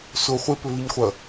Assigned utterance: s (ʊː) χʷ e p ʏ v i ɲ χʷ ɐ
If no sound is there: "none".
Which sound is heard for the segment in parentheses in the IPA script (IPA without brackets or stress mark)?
ʊ